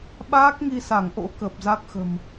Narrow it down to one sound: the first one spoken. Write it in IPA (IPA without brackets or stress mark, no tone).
ɓ